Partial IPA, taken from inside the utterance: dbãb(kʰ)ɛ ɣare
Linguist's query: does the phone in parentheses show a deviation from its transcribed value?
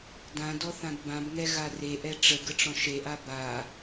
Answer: yes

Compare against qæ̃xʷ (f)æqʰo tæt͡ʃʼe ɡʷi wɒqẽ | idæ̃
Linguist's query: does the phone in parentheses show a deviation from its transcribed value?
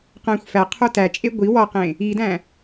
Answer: no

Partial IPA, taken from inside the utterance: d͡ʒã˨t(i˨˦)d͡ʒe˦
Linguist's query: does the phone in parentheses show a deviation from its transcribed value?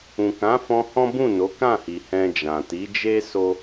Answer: no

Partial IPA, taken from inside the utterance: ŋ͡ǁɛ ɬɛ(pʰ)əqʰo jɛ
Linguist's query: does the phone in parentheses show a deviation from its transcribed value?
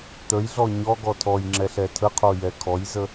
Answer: yes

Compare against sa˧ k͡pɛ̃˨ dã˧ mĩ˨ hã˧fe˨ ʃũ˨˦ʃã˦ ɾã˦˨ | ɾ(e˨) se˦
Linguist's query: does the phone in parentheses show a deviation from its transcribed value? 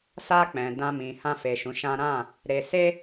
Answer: yes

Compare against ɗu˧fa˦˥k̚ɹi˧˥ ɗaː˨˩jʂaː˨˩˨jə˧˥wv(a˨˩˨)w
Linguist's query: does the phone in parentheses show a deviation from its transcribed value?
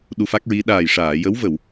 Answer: yes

